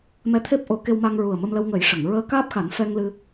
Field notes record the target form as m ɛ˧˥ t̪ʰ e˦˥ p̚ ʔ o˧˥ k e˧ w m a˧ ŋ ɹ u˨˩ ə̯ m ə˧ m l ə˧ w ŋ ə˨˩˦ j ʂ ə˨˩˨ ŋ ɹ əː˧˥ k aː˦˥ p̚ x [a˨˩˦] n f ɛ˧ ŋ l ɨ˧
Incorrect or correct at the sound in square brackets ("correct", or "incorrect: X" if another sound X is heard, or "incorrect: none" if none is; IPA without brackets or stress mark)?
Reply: correct